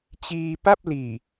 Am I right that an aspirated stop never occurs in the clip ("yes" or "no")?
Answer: yes